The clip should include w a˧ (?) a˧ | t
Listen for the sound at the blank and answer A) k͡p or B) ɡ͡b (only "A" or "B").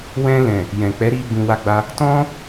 B